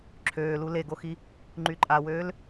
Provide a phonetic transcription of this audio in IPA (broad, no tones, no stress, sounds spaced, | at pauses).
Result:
ǁʰ øː l u l e ɡ o x i | ŋ͡ǃ y ǃʼ a w øː l